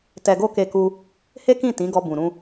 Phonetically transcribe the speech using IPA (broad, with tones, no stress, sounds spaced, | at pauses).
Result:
t ɛ˧ ɡ o˦ k e˧ k u˧ | h e˦ k ĩ˦˨ t ĩ˨˦ ɡ ɔ˧ b ũ˨ ɾ ũ˧